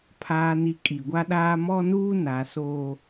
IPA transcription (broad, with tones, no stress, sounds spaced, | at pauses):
pʰ aː˨ n i˨ kʼ i˨ ɡʷ a˦ ɗ aː˦ m ɔ˦ n uː˦ n a˨˦ s oː˦